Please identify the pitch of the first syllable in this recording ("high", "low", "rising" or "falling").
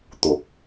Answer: rising